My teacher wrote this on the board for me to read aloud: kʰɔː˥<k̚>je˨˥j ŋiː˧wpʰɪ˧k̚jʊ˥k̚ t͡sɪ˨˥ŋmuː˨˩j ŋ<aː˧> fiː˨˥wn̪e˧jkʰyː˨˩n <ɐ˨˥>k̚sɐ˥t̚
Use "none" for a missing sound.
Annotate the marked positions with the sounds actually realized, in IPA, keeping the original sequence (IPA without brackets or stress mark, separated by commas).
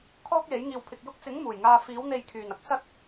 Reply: k̚, aː˧, ɐ˨